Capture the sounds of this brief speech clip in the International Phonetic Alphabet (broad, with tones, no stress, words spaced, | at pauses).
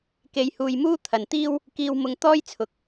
ke˧jhuː˧j muː˥t̪ʰɐ˨nt̪iː˥w | kiː˧wmʊ˧ŋ t̪ɔː˥jt͡sʰʊ˨˥k̚